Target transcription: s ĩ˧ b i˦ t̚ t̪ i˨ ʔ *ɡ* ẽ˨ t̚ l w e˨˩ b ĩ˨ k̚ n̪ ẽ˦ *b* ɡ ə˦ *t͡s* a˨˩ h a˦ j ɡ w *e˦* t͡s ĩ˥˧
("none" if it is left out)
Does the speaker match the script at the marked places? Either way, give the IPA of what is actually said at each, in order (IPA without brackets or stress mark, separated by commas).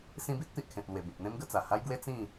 kʰ, m, t͡s, e˦